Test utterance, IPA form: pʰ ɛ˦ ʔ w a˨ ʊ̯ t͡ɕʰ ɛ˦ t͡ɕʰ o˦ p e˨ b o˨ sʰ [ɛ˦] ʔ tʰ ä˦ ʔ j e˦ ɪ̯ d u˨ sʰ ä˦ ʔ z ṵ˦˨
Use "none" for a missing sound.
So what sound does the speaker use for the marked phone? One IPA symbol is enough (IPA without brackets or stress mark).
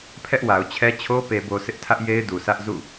ɪ˦